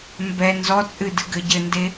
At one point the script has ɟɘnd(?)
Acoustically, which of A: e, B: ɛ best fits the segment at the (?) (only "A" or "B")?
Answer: A